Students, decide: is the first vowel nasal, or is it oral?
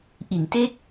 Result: oral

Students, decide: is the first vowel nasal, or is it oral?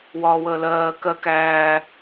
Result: oral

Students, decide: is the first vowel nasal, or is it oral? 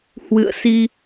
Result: oral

